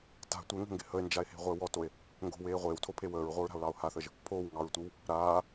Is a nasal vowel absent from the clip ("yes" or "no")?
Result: yes